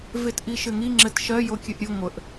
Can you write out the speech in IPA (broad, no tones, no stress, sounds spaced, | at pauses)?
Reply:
v e t ʔ i ʃ ɘ ŋ i ŋ͡ǁ ɘ t ʃ ɜ j o kʲ ɨ ʔ ɾʲ ɨ ŋʷ ə ʔ